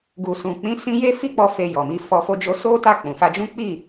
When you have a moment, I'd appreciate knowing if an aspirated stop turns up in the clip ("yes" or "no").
no